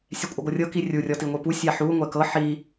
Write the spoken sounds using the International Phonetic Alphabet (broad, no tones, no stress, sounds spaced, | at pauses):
sʲ ɛ kʷʼ ɤ ɡʷ ɤ rʲ ɤ k i rʲ u rʲ ɔ t i ŋʷ i p u sʲ a ħ u ŋʷ ɛ k ɤ ħ i